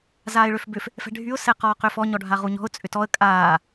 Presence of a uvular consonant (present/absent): present